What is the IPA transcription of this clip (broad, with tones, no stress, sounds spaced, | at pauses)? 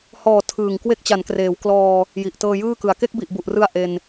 h ɔː˨˩ tʰ ɯː˨˩ ŋ k w e˦˥ k̚ t͡ɕ a˩˦ n k r eː˩˦ w k l ɔː˧ | j i˨˩ ʔ t ɤː˧ j ɯː˥˩ k ɯ˨˩ a̯ k e˥˩ k̚ b i˨˩ ʔ b u˨˩ ʔ r ɯ˧ a̯ ʔ e˧ n